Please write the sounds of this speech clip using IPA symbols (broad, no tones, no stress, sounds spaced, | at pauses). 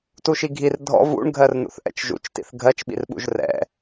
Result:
t u ʃ i ɡʱ i r dʱ ɔ̰ v ṵ ɳ ɡʱ ɜ r n̪ ṵ θ ʔ ɛ̰ t͡ʃ ʒ ṵ t͡ʃ t ḭ θ ɡʱ ɜ t͡ʃ ɓ ḭ r ɓ ṵ ʒ r ɛ̰